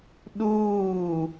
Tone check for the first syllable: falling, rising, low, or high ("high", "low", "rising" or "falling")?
falling